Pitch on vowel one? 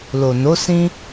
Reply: low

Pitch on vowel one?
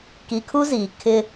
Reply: low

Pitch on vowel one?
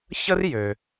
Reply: high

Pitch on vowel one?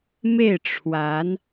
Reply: falling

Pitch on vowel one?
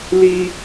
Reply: high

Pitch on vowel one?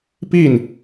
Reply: falling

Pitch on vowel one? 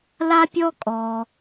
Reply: high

